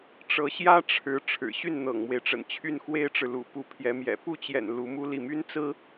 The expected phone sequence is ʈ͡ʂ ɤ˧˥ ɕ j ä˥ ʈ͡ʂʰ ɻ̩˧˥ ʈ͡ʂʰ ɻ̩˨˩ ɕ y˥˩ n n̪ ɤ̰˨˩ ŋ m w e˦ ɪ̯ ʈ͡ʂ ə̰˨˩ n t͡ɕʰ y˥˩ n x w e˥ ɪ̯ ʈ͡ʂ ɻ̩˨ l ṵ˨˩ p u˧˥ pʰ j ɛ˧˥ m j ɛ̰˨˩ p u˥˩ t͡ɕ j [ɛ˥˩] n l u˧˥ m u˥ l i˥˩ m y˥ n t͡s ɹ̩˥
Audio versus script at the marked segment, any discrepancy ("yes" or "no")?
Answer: yes